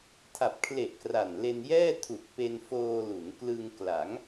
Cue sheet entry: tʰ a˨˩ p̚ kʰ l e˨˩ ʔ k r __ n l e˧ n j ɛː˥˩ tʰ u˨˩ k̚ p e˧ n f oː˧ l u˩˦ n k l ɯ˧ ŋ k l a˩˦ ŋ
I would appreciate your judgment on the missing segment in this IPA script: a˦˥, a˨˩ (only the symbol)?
a˨˩